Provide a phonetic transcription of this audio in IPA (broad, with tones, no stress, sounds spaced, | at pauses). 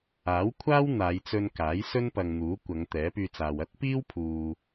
aː˨˥ w kʷʰ aː˥ w n̪ aː˨˧ j t͡s ɵ˧ n k aː˨˥ j s ɵ˥ n p ɐ˨ ŋ n̪ uː˨˥ kʷ ɐ˨˧ ŋ t̪ ɛː˨˥ p yː˧ t͡s aː˨ w ɐ˥ t̚ p iː˥ w pʰ uː˨